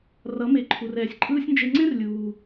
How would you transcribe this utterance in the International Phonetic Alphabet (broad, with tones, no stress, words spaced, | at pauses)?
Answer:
rʌ˨˦me˨˦ǃʰu˨rɛː˨sʲ ǃʼɯː˦sʲnd͡ʒe˧ ŋ͡ǀẽ˦r lʲuː˨